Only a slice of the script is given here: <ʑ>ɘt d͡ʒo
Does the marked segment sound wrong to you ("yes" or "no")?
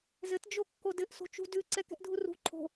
yes